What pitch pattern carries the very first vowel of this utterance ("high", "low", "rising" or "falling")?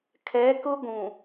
rising